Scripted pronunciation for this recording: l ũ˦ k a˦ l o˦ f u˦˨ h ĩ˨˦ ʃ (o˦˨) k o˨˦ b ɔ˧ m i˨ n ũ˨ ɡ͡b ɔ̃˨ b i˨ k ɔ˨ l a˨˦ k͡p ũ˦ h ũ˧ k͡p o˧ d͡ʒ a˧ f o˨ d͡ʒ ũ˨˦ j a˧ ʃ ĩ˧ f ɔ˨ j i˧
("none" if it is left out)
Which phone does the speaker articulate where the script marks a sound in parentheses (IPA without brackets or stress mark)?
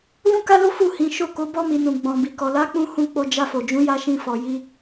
o˦˨